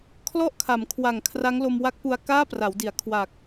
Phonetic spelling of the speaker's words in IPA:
kʰ l ɔ˥˩ ʔ kʰ a˩˦ m kʰ w a˨˩ ŋ kʰ r a˦˥ ŋ l o˧ m w a˦˥ k̚ p u˧ a̯ k aː˥˩ p r a˩˦ w d i˩˦ a̯ kʰ w a˨˩ k̚

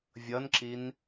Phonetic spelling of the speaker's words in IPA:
vʲ ʌ n ǁ i n

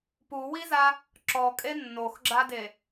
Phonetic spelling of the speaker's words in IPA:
p u w i z a | ǁ ɔ kʼ e nː o x ɡ͡ǁ a d e

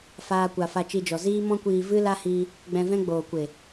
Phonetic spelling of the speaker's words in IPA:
f aː˦ kʷ a˧ f a˧ t͡ʃ i˧ d͡ʒ ɔ˨ z iː˦ m ɔ̃˦ kʷ iː˧ v ɨ˦ l a˦ h i˧ | ɡ͡b ɛ̃˧ v ɛ̃˦ ɡ͡b oː˨ kʷ e˨

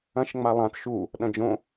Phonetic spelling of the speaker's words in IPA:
ɐ̃ ʃ ŋ͡m a lˠ ã t ʃ u | ɗ ɐ̃ d͡ʒ õ

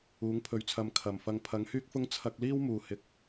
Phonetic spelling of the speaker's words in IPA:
uː˨˥ ŋ pʰ ɵ˨˧ ɥ t͡sʰ ɐ˨ m kʰ ɐ˨˩ m f ɐ˧ ŋ pʰ ɐ˨˥ ŋ h yː˥ k̚ f ʊ˥ ŋ t͡sʰ ɐ˧ k̚ l iː˥ w m uː˨˩ h ɪ˨ k̚

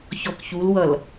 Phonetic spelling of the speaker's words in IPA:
ç ɔ k ç u l w ʌ l

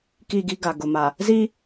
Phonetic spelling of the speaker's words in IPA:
k i˦˨ ɡ i˦ ɡ a˨ ɡ ʊ˨ m a˨ | z iː˦

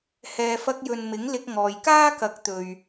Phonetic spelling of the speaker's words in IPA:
h ɛː˨ f ɐ˧ k̚ j ɵ˨ n m ɪ˨˥ ŋ l ɪ˧ k̚ ŋ ɔː˨ j k aː˥ k ɐ˨˥ k̚ t̪ ɵ˨ ɥ

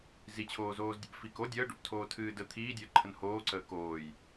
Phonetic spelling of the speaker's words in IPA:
z i t͡ɕʰ oː z oː z dʲ ə̰ b f i k o dʲ əː ɖ o̰ p tʰ oː tʰ ɨː d ə t̪ʰ iː dʲ əː ǃʰ ə n h oː ǀ əː k oː j

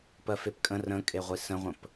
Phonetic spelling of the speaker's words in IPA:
p ɜ f e p kʼ ə̃ r ə̃ kʼ e ʁʷ i s ə̃ ʁʷ ə̃ p

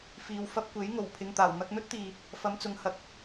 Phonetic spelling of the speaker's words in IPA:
f iː˨ w f ɐ˧ p̚ kʷ e˨˥ j ŋ o˨˩ w pʰ ɪ˧ ŋ t̪ aː˨˩ w n̪ ɐ˧ k̚ n̪ ɵ˥ t̚ t̪ iː˨ | f ɐ˨˧ m t͡s ʊ˨˧ ŋ h ɐ˨˥ k̚

